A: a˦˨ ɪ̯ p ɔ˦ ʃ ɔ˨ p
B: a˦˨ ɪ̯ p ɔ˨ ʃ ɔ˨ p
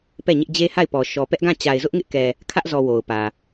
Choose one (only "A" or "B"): B